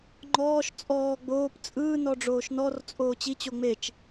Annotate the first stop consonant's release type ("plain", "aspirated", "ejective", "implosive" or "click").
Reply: click